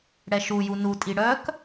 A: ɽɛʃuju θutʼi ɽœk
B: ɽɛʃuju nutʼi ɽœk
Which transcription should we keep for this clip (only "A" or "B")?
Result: B